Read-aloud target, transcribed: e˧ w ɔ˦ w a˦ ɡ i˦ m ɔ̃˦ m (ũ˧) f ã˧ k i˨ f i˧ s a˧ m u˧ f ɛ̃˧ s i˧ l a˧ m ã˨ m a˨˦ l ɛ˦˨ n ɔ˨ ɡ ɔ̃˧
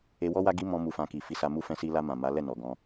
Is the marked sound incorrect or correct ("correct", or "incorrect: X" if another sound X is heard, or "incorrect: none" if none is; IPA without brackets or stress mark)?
incorrect: u˧